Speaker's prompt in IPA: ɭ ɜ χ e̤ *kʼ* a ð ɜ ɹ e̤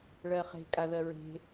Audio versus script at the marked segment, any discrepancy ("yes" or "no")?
no